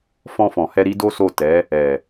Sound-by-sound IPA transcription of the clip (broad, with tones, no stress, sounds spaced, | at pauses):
f ɔ̃˧ f ɔ̃˨ h ɛ˧ ɾ i˦ d o˦ s o˦˨ t ɛ˨˦ | ɛ˨